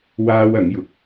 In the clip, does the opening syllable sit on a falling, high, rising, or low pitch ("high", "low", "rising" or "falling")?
high